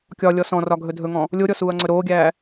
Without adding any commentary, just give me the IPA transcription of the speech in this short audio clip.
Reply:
kʲɒ lʲɔsɔ̃rɒ ɡʱɵdʱɵŋɔ̃ | lʲoɾʲɔ suːɐ̯ŋ͡ǀɵɾoːɡʲæː

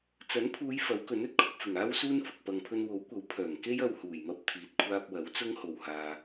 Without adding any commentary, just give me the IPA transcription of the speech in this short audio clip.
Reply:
t͡sɐ˨˥npʰuː˨˧j fɐ˨˥wkɵ˨˥nɵ˨t̚ kʰʊ˧k̚ fɪ˨˩ŋaː˥wsuː˥nfʊ˨k̚ pɐ˨ŋpʰɵ˧n wo˨˥wkʷɐ˨˥w pʰœː˨˩ŋ ke˥jɐ˧whuː˨˩jmɐ˧p̚ t̪ʰiː˨t̚kʷʰaː˧p̚wɐ˨˥w t͡sʊ˥ŋho˨whaː˨

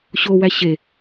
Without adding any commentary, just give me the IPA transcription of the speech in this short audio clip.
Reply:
ɕowæ ɕe

